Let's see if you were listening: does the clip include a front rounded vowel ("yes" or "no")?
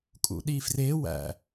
no